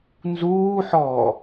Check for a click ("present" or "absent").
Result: absent